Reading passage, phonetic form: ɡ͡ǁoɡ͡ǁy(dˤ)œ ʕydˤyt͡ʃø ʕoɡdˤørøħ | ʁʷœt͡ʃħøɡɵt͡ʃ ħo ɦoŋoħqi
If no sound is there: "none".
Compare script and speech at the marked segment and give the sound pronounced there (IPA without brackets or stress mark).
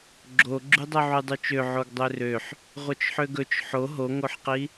dˤ